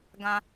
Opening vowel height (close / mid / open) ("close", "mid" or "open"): open